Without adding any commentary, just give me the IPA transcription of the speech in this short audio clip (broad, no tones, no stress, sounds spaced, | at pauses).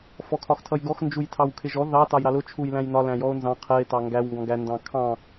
f ɔ kʰ ɒ x tʰ ʌ j ɡ ɔ x n d͡ʒ u j tʰ ɑ w kʰ ɪ ʒ ɔ ð ɑ t ɑ j ɾ ɑ l ʊ t͡ʃʰ u j l æ̃ j n ɒ l æ̃ j ɔ o̯ n z ɑ̃ qʰ ɜ e̯ t ɑ ŋ ɡ æ w ŋ ɡ ɔ̃ ɡ æ n d ɑ̃ kʰ ɑ̃